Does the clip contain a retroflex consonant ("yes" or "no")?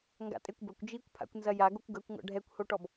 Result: yes